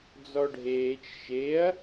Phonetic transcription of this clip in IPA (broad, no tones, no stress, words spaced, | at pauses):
d͡zɔɖʱeːt͡ʃ ʃeɐ̯